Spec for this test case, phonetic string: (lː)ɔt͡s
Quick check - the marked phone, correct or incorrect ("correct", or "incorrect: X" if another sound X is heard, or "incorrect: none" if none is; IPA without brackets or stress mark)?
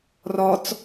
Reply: incorrect: r